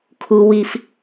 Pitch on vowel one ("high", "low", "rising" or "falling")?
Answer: low